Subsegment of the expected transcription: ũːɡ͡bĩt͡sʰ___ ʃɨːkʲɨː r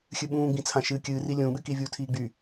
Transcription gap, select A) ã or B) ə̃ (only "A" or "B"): A